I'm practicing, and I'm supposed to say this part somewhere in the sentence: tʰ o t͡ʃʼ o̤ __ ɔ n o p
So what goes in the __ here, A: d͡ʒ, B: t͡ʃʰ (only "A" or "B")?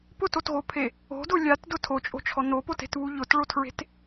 B